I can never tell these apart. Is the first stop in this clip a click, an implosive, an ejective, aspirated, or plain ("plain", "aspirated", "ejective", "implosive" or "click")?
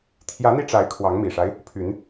aspirated